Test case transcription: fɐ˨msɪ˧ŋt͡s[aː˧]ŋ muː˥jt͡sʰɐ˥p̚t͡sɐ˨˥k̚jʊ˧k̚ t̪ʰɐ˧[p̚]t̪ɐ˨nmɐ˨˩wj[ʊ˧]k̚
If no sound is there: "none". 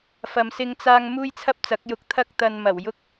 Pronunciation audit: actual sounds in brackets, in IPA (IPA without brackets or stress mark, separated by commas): aː˧, k̚, ʊ˧